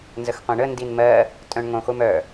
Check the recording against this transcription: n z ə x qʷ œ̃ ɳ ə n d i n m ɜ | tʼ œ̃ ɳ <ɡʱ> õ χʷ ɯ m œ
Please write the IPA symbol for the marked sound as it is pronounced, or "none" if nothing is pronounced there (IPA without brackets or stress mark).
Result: ŋ